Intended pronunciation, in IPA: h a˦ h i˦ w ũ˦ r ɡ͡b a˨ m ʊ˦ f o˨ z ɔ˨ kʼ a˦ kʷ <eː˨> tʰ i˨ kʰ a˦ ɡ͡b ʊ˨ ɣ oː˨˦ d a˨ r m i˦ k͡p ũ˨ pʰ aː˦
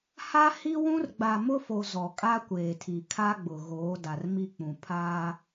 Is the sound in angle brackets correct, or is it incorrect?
correct